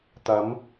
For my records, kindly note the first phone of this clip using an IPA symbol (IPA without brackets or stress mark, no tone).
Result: t̪